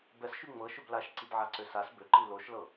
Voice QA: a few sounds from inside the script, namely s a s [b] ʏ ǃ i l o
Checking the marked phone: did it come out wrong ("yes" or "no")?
no